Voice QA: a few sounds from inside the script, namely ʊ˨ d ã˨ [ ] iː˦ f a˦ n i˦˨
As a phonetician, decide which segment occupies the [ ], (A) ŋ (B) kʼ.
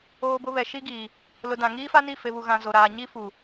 A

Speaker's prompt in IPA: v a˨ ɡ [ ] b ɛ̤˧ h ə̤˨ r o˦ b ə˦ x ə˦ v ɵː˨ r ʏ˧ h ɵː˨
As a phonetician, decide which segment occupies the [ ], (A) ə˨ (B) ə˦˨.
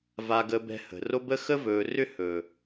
A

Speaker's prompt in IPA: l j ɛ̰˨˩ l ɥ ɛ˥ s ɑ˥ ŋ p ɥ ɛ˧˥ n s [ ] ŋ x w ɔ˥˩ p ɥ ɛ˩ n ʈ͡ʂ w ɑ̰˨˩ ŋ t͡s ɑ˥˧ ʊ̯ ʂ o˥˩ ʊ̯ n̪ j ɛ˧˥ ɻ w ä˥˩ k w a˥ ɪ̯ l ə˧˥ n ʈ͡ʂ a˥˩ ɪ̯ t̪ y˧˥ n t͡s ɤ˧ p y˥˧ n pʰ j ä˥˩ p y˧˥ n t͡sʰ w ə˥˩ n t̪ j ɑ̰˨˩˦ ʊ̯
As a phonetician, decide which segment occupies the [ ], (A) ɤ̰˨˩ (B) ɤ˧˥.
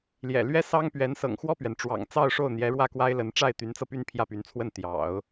A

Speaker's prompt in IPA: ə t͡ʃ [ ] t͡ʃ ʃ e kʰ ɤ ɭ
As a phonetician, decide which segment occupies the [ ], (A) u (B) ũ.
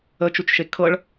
A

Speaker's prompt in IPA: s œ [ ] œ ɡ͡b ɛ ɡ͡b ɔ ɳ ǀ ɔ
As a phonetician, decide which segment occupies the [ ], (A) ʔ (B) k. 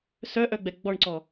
A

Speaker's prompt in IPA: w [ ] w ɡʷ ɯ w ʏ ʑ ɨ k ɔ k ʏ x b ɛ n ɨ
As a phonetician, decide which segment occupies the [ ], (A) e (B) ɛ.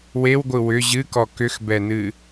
A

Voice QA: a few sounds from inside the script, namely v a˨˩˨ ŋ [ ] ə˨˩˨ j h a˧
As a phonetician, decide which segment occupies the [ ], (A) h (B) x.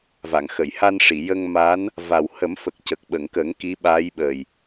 B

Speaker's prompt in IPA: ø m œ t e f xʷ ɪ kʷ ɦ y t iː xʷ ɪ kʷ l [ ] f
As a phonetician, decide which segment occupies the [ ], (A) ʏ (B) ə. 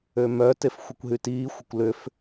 A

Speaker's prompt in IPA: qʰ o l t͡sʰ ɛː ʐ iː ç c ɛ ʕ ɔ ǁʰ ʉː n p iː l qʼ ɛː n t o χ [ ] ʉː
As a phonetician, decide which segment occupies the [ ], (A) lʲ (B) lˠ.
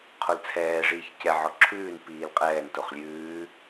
A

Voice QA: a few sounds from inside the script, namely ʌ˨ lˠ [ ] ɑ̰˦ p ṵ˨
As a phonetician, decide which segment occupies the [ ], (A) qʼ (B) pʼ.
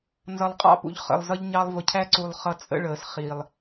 A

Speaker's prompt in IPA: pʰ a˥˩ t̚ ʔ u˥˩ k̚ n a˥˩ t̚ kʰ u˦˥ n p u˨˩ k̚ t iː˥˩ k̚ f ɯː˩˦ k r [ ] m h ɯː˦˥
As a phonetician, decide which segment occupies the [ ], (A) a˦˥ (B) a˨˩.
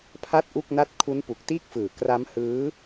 A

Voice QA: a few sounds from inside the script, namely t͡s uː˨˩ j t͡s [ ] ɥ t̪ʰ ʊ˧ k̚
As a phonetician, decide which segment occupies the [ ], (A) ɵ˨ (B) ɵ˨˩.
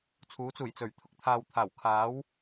B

